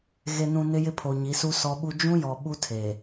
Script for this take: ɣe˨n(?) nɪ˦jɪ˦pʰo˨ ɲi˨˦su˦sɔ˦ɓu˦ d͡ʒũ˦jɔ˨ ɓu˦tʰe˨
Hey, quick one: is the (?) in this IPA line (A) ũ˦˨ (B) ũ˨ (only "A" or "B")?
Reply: B